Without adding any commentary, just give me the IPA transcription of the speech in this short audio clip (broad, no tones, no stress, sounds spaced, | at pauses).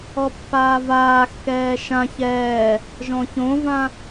ɔ pː aː v aː x k ɛː ʃ ã ç ɛː | ʒ ɔ̃ ç õ v ã